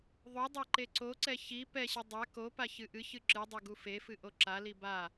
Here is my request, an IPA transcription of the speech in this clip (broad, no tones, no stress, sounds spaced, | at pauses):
ðˤ o dˤ a ǃ e ǀ o ǀ ɛ ç i p ɛ ɕ ɨ dˤ a k o p a ç ɨ ʔ ɨ ç ɨ ǁ ɨ dˤ u ɡ u f e f ɨ ʔ o ǁ a l i b a